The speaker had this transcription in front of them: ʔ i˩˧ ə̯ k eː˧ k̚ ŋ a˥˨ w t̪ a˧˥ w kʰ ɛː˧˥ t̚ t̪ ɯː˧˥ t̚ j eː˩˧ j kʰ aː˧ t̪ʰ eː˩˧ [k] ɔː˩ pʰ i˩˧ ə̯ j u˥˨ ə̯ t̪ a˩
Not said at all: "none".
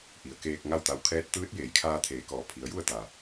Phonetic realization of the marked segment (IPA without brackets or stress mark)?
k